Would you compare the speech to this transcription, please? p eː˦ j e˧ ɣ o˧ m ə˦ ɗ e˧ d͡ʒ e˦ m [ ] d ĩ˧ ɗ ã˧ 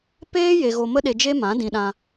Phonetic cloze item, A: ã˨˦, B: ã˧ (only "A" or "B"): A